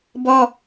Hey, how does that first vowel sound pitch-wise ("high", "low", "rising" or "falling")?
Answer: high